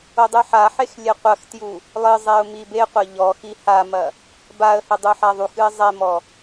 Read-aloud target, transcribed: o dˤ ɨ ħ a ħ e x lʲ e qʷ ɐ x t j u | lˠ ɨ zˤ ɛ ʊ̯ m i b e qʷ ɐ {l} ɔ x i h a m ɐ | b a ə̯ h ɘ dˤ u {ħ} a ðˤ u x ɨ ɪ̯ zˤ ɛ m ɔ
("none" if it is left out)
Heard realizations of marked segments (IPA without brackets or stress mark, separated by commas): ʎ, ħ